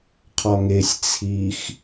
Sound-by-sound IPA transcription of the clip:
qʰɒŋesʲ t͡sʰix

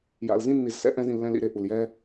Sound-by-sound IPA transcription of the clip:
ja̰˨lzĩ˦ nːi˨zsɛ̰˦ʔɛ̃˧zĩ˨ lːɛ̃˧lḭ˦˨ɾe˨ ʔu˨ljɛ˦

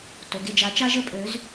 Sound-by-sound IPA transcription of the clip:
to˩˧ɡe˦˨d͡ʒa˨˥t͡ʃa˥ʒ ə˥pʼø˨˥z

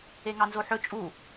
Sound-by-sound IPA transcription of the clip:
eŋɑnzoħɵ t͡ʃʼu

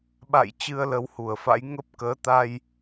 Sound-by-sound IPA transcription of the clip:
ɓa̰˧˨j t͡ɕɨ˧ə̯lə˨˦whu˧˩ə̯fa̰˧˥j ŋə˦˥p̚ kəː˨˦t̪a˧j

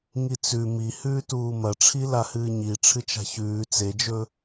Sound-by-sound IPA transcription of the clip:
ŋit͡sʉ mihʉːtuː mɐʈ͡ʂʰi lahɨːɲi ʈ͡ʂʰɨt͡ʃa̤çʉː t͡sed͡ʒɵ

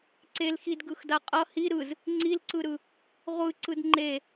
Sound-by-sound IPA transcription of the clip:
ǀelxidɡɯxda qʼʌ hi ɾɯz | ŋ͡ǀilǀɯɾɯ | ʁʷɯǀɯd ŋ͡ǃe

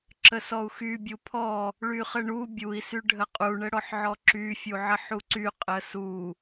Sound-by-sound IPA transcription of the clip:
ǁəsɔu̯xy bʲupʰɔ | ɭyχəɳu bʲui̯ syɖʱəqʼu ɳəɽɔħʕɔǁy fʲuʕəħuǀy qʼəsu

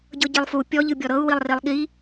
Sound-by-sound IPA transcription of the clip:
ɟɤɟilˠfu pʲɔ ʎɯbʲɔɾɤu̯ wilˠrilˠɠi

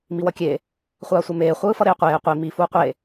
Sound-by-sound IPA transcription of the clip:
miwʌkʲe | χʷaːsʷemeː χʷɯːfʌɾeːqʷeː qʷi mi fuːqʷe

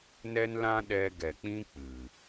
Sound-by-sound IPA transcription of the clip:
nɛ˦nlã˦ɗɛ˧ ɡɛ˨k͡pĩ˦ k͡pɨ˨

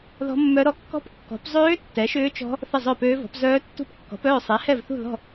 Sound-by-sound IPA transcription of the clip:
ðɔ̤˦˥mːœ˦˥ɾɔ˦˥ kːɔ̤˦˥p kːɔ̤˨˥p zˤøː˦˥ tːɛ˨˥ʃʏː˦˥t͡ʃɔ̤˦˥ | θə˥˨zˤœ˥˨pøː˦˥vɔ̤˨˥p zœː˦˥tːṳ˥˨p kːɔ̤˨˥pœː˥˨ sˤɛ˨˥hɛ˥˨vθṳ˥˨ðɔ̤˥˨

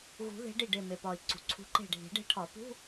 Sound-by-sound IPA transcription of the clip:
ɣṳ˨˩˦ ðe̤˨˥ɖi˧˩ɖe˧˩ me˩pɒ˩i̯ ǀṳ˩ǀʰṳ˨˥ǃe̤˧˩ ɖʱi̤˨˩˦ɖe̤˨˥ʈʰɒ˨˩˦ pṳ˧˥˧

